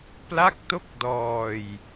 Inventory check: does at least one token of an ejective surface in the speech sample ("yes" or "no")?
no